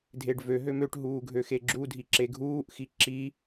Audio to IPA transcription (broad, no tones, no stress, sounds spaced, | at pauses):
dʱ e ɖ v ø ɦ ø m ø ʈ ɦ uː ɡʱ ø x e ɡ͡ǁ u dʱ i ǁ e ɡʱ uː ʔ x i ǁ i